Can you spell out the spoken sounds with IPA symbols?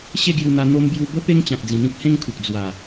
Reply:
ɕ e˥˧ ɡ j u˧ n̪ a˧ n̪ o˧ m b j u˧ b ə˦ p e˦ ŋ t͡ɕ ã˨ k̚ d͡z ĩ˨˩ n̪ ĩ˦ k̚ h ẽ˦ ŋ kʰ u˨ k̚ d͡z w a˨˩

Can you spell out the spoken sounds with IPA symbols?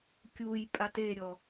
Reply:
kʲ u j pʼ a t e ɾʲ ɔ

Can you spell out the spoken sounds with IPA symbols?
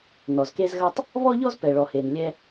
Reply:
n ɔ˩ z k e˧ z ɣ ɐ˧ tˤ | β ɔ˥ ʎ ɔ˥ z p ɛ˩ ɭ ɔ˩ h e˩ n lʲ ɛ˧

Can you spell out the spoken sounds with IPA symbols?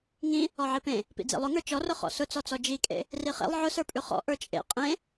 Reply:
ŋ ĩ | ɔ ʕ i p ẽ | p ḭ d͡z ḛ lˠ ʊ ŋ ə˞ t͡ʃ ɔ r ʊ χ ɔ̰ s ʊ t͡s ɔ t͡s ɔ d͡ʒ i kʼ ḛ | r i χ ḛ lˠ ʕ ʊ s ə˞ pʼ ʉ χ ɔ̰ ʔ ə˞ t͡ʃʼ ḛ qʼ ẽ

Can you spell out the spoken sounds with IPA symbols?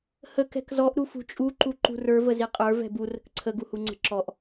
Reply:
h ə k ɛ̤ k z ɔ ʔ ɾ u f ṳ t͡ʃʼ u ǃ u ǃ ṳ r ə˞ v ə z i qʼ ə˞ v ɛ̤ b u r ə̤ k ǀʰ ə ɡ u h u ŋ͡ǀ ə̤ ǁ ɔ ʔ

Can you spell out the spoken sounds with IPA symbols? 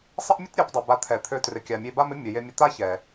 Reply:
sˤ ə˦ ʔ mʲ ə˦ t ɾʲ ø˨˦ p dˤ e˨ b a˧ t̪ʰ ɛ˨ t̪ʰ ø˧ t r ɪ˨ kʲ a˨ mʲ e˧ b a˦ m ɪ˦ mʲ ə˨ j e˧ mʲ ə˧ t̪ a˦ ç ɛ˨

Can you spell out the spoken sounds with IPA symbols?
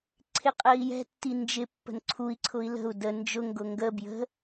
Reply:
ǀʰ ɪ qʼ ɜ i̯ j ɛ̤ tː i n d͡ʒ ɪ pː ə̤ n ǀʰ u i̯ ǀʰ ʊ i̯ l ə̤ u̯ d ə n d͡ʒ ʊ ŋ ɡ ʊ ŋ ɡ ə b j ə̤

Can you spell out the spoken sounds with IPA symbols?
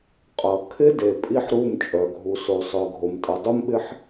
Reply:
qʼ ʌ˨ kʰ ɪ˦ d e˨ pʼ i˦ ħ ɾ u˦˨ m t͡ʃʼ œ˨ ɡʱ u˨ s o˨ sˤ œ˨ ɡʱ o˨ m tʼ ʌ˨ dˤ u˦ m ɓ ɪ˦ ħ

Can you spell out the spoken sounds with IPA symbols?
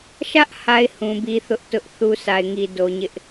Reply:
ʃ ä˦ ʔ h a˨ ɪ̯ h ũ˨ b i˦ θ ʊ˦ ʔ t ʊ˦ ʔ θ u˦ sʰ a˨ ɪ̯ ŋ i˨ d o˨ ɲ ɪ˦ ʔ

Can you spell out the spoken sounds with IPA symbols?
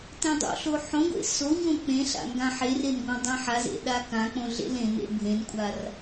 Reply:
t ẽ dˤ o̰ ɬ o ħ õ ɡʷ ḛ s o ɲ õ k͡p ẽ ɬ a̰ ŋ ɡ ã ħ e r e n ɡʷ ã dˤ ẽ ħ a z ḛ ɗ a k ã k͡p õ ɮ ḛ l ẽ n ḛ bʱ ẽ n kʷʼ a r

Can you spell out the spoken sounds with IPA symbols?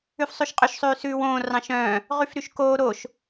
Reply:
ʉ f sˤ ʉ ʃ qʼ ø ʃ sˤ ʉː s ʉː w õː r ɑ̃ ʃ œ̃ː | ʁ y f ɾ y ʃ k oː ɾ o ʃ

